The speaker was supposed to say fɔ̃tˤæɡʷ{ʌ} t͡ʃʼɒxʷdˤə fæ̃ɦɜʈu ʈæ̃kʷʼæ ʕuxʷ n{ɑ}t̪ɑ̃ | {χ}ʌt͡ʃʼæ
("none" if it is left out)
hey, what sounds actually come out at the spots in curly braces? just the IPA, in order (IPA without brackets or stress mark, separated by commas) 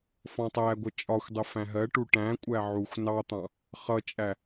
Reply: ʌ, ɑ, χ